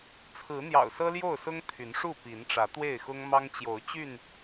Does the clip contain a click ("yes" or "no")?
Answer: no